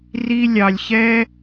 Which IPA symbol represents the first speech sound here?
r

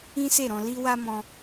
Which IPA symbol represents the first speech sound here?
ĩ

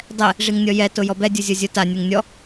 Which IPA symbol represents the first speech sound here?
dˤ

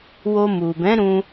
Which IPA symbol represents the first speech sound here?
w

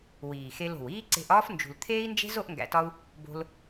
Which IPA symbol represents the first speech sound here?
w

